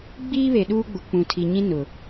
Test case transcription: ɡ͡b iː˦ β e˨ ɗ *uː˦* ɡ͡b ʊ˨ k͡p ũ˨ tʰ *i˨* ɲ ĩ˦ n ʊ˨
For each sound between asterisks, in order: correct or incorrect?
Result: correct, correct

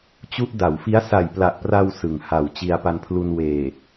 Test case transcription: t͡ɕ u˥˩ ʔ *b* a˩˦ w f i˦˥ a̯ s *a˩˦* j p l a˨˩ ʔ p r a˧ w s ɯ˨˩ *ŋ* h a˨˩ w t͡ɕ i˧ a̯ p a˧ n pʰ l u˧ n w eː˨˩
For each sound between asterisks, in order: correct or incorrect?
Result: incorrect: d, incorrect: a˨˩, correct

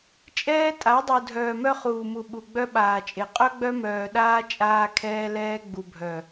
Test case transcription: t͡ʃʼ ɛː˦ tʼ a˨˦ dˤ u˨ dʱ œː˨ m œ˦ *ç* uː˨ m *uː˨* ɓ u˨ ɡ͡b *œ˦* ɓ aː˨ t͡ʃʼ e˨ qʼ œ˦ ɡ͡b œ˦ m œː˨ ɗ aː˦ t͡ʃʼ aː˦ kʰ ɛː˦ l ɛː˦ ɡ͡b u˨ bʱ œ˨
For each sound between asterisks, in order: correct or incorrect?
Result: incorrect: χ, incorrect: u˨, correct

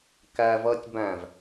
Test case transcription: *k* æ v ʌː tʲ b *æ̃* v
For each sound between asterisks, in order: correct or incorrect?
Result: correct, correct

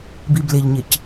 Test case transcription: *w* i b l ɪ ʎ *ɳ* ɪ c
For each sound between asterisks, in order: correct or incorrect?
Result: incorrect: b, incorrect: ɲ

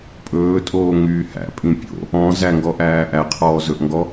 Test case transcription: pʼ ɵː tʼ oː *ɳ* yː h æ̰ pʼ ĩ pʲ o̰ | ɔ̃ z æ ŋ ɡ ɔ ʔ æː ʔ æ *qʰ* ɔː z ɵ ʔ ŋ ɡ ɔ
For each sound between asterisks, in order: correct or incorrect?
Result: incorrect: ŋ, correct

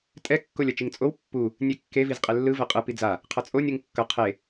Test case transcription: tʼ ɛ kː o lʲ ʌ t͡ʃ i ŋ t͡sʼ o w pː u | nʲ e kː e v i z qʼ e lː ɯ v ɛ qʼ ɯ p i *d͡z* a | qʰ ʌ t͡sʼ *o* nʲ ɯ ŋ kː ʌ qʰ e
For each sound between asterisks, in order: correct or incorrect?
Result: correct, correct

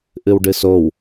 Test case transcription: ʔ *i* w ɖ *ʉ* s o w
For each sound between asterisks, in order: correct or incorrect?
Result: incorrect: ɨ, incorrect: ɨ

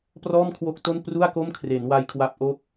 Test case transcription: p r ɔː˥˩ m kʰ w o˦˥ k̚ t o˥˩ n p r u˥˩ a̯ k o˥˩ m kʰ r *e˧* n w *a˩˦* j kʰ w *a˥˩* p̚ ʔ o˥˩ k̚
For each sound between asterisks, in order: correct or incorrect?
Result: incorrect: e˩˦, incorrect: a˧, incorrect: a˦˥

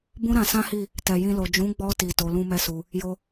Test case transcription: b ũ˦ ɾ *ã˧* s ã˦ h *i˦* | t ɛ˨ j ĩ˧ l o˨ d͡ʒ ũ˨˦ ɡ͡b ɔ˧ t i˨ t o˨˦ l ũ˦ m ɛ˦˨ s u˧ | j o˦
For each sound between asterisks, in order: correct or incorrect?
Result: correct, incorrect: i˦˨

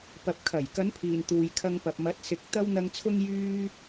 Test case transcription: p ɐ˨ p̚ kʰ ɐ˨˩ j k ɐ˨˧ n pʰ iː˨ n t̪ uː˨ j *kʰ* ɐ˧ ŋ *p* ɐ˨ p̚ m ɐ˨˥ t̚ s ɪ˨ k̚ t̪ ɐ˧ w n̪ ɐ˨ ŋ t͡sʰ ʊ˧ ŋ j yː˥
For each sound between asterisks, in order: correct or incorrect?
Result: correct, correct

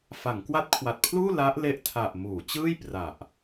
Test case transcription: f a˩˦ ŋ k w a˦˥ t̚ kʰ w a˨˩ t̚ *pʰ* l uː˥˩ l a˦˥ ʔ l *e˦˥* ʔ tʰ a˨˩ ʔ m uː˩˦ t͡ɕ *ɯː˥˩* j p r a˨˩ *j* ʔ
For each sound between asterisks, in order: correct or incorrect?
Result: correct, correct, correct, incorrect: none

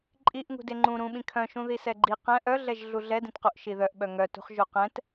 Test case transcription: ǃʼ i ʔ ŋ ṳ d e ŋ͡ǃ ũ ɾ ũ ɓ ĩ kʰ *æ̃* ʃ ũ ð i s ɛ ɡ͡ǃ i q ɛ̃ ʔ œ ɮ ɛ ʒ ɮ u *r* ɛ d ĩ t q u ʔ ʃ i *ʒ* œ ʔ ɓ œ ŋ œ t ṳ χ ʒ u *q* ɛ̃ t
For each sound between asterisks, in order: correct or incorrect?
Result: incorrect: œ̃, incorrect: ɮ, incorrect: ð, correct

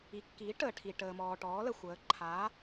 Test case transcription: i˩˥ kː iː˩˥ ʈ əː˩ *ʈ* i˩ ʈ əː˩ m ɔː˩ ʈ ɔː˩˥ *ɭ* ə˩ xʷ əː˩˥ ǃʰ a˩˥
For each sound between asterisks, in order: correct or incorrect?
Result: incorrect: ʈʰ, incorrect: l

